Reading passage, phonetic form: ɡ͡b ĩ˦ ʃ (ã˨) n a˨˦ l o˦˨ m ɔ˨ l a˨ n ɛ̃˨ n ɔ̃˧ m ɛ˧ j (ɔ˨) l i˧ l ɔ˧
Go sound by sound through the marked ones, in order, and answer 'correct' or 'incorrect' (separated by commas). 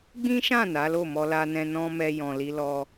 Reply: incorrect, incorrect